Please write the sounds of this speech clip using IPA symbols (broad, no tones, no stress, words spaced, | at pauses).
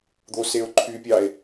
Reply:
d̪oseo̯ǃʰypʲɑe̯